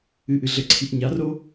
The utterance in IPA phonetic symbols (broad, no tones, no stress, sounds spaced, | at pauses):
ɨ ʔ ɨ ɮ ɘ ǀʰ i ʔ ɲ a r o